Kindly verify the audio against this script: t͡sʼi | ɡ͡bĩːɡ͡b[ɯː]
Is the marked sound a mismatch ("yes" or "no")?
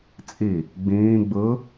no